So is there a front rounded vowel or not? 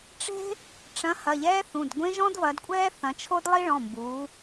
no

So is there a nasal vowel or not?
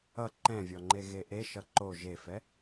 yes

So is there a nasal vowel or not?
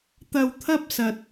no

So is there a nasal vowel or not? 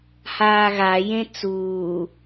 yes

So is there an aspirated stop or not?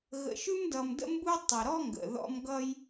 no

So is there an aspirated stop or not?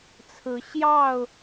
yes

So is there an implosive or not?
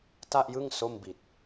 no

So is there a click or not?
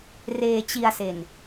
no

